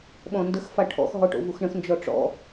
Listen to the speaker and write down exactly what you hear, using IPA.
ɓ ɔ̃ n d ə x f a ʈʰ ɔ̰ x ɦ ɔ ʈ o̰ v u x ɳ ə̃ x n d͡ʒ ɔ ʈ͡ʂ ɔ̰

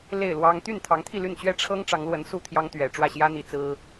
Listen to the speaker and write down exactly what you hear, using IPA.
l e˥˨ ɪ̯ l w ɑ˦ ŋ t̪ y˥˨ n t̪ʰ ɑ˨˦ ŋ t̪ʰ i˥˨ l y˥˨ n t͡ɕ ɥ ɛ˦ ʈ͡ʂʰ ɤ˦ ŋ ʈ͡ʂ ɑ˨˦ ŋ l w ə˨˦ n s u˥˨ t̪ʰ j ɑ˦ ŋ t̪ ɥ ɛ˨˩ ʈ͡ʂ w ä˥˨ ɕ j ä˦ n̪ i˨˦ t͡s ɹ̩˦

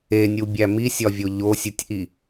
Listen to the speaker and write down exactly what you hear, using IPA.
e nʲ u bʲ æ m i sʲ ɒ vʲ o ʎ o sʲ u tʲ ʔ i

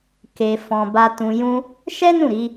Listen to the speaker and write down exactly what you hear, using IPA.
k e˧ f ɔ̃˧ b a˧ t ũ˧ j ũ˦ | ʃ ɛ˦ n ũ˦˨ ɾ i˨˦

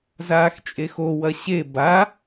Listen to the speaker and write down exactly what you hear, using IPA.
z aː x t͡ʃʼ e x o w ɐ ɕ e b a

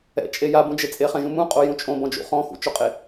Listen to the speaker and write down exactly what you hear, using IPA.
ɛ̰ t͡ʃʼ e j a b ũ d͡ʒ e t͡sʼ e χ ɛ̃ ʒ ũ m ũ qʼ o j ũ t͡ʃʼ õ b ɔ̃ d͡ʒ ṵ χ ɔ̃ x ṵ t͡ʃ o qʼ e

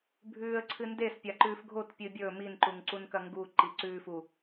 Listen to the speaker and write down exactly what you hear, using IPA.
bʱ ʉː ə̯ ǀʰ ɨ n d e s pʲ a ǃ ʉː f ɡʱ o t pʲ ɨː bʲ ɵː m i n ǃ u ŋ ǀ u n k ɐ ŋ ɡ u ǃ i ǀ ʉː f u

